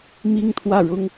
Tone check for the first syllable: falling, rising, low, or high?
high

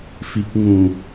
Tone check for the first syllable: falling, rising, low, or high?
low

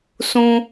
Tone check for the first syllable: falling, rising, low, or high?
low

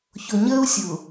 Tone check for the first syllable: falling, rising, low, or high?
low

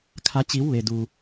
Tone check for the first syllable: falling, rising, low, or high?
rising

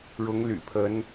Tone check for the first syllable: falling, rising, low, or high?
rising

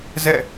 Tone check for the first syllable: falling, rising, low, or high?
falling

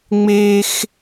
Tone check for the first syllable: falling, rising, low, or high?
high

